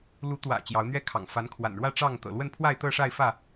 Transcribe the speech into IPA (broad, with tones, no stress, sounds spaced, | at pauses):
l u˨˦ t̪ w ä̰˨˩ t͡ɕ j ɑ˨˦ ʊ̯ n̪ ɥ ɛ˦ kʰ ɑ̰˨˩ ŋ f a˨˦ n kʰ w a̰˨˩ n ɻ w ä˥˨ ʈ͡ʂ ɑ˥˨ ŋ t̪ ɤ̰˨˩ l w ə˥˨ n pʰ w a˥˨ ɪ̯ t̪ ɤ˥˨ ʂ a˥˨ ɪ̯ f ä˥˨